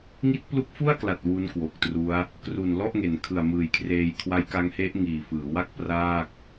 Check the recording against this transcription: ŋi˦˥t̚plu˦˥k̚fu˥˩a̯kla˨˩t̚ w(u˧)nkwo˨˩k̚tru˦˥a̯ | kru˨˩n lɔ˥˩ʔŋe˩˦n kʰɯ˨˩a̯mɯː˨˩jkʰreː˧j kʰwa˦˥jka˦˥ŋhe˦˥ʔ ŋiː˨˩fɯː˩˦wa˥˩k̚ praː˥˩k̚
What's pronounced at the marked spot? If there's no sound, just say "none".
u˦˥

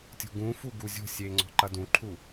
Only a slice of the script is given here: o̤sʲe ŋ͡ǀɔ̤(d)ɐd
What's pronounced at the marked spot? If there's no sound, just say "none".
ǃ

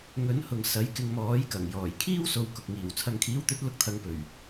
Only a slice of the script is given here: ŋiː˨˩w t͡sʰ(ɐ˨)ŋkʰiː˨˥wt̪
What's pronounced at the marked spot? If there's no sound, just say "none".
ɐ˨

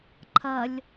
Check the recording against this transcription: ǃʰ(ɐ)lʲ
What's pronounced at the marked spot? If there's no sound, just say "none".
ɐ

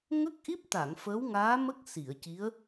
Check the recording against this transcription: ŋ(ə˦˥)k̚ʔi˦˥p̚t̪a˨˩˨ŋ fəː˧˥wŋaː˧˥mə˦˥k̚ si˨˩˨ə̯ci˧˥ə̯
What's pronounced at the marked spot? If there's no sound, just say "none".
ə˦˥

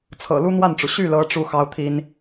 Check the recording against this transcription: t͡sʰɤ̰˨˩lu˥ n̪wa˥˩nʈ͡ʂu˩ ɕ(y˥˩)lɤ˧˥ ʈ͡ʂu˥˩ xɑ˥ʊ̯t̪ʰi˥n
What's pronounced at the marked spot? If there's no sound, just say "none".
y˥˩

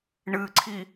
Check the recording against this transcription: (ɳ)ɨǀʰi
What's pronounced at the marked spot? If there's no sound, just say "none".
ɳ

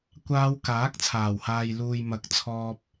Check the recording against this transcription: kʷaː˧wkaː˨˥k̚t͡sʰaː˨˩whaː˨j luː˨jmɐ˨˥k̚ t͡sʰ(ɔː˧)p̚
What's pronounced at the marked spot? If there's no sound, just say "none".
ɔː˧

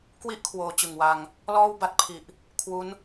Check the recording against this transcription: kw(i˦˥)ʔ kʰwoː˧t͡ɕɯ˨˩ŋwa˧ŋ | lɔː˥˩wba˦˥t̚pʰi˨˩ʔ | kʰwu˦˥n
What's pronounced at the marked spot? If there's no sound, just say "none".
i˦˥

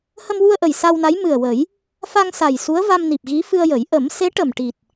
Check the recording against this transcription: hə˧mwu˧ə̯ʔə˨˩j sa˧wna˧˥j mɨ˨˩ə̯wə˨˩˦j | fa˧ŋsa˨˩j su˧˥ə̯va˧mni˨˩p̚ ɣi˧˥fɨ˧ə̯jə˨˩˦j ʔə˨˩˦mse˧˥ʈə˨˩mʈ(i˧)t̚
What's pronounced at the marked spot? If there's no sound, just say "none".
i˨˩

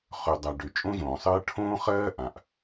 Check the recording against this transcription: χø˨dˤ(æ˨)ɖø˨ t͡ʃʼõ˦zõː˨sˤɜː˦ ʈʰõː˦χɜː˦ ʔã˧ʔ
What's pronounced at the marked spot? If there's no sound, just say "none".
a˨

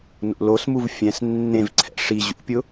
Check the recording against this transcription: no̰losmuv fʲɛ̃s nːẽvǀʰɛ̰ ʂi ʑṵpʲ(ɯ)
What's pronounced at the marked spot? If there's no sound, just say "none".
ʊ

